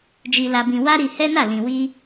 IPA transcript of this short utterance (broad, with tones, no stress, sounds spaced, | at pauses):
d͡ʒ i˧ l a˧ b ĩ˧ w a˦ ɾ i˧ h ɛ˦ n a˦˨ l ĩ˨ w i˧